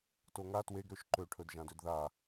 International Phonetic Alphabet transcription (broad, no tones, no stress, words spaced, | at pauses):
toŋa tweɡɾøʃ ǃøʈʰɵdʒãdød ða